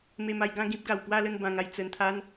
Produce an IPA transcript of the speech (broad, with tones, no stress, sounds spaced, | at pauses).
m e˧ m a˧ j ɡ ã˥˧ ɡ ĩ˦ p̚ ɡ a˨˩ w p w a˥˧ l ə˥˧ n b ã˧ ŋ a˧ j t͡s ə˧ n t̪ʰ a˦ n